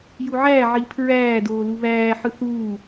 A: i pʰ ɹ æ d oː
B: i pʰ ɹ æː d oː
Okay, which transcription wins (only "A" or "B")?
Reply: B